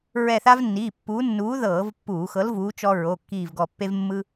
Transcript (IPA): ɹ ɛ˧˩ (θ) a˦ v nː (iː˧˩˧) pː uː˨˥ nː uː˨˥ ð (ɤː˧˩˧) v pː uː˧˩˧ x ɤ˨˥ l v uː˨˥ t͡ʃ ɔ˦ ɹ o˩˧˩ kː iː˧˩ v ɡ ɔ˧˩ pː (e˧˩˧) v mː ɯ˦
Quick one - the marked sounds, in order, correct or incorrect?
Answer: correct, incorrect: iː˩˧˩, correct, incorrect: e˦

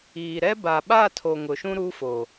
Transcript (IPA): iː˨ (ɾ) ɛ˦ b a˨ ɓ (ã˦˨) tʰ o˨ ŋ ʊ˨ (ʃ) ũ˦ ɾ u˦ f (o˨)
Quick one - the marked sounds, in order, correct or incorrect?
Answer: correct, incorrect: a˦˨, correct, correct

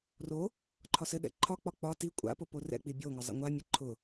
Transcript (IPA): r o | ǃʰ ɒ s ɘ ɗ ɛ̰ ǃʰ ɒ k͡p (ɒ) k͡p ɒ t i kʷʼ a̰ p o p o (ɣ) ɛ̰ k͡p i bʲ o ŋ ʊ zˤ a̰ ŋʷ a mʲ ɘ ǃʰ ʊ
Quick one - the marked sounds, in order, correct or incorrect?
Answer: correct, incorrect: r

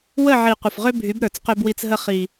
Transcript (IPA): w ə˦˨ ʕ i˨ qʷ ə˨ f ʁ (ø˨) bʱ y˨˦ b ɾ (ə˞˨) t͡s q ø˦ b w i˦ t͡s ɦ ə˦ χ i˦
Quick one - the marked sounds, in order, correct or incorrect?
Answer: incorrect: ø˦, correct

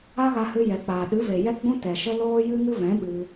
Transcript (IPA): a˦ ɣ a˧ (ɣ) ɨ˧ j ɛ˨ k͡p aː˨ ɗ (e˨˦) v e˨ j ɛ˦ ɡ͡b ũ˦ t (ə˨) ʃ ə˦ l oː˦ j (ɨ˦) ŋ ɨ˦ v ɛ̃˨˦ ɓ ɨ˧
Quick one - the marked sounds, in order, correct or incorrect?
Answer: incorrect: h, incorrect: ɨ˨˦, incorrect: ɛ˨, correct

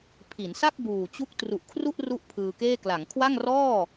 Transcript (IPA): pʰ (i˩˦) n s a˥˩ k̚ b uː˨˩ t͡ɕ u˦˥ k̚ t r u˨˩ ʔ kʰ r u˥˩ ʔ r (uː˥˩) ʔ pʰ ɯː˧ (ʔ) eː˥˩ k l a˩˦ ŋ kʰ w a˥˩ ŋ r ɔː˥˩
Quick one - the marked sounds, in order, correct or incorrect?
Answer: correct, incorrect: u˥˩, incorrect: k

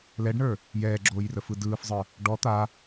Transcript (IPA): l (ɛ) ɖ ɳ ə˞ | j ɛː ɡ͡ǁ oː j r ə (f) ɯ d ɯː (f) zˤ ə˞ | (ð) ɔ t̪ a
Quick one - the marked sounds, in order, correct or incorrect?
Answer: correct, correct, correct, incorrect: ɖ

